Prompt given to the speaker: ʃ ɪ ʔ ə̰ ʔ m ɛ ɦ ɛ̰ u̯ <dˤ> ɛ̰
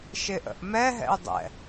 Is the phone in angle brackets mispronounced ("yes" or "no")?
no